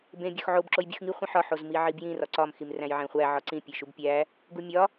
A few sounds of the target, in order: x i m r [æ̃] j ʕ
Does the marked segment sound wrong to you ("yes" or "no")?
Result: no